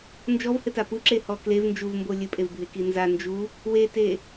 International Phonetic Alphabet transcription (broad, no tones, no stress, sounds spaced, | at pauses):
n d͡ʒ ɔ v h ɘ t a p u ǁ e h ɔ k l e v n d͡ʒ u v m b o lʲ ɘ pʼ e v bʱ e k i n z a n d͡ʒ u | w e t e